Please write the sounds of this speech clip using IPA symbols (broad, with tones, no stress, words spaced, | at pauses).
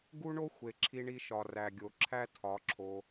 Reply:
ɡu˦ɳo˦ xʷe˨ǁʰi˧ɳi˧ʃɒ˨ ræ˨ɡʲo˨ǁʰæ˦ tʰɒ˨˦ǁʰo˧